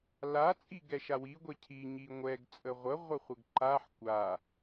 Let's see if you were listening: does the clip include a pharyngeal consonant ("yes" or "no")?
yes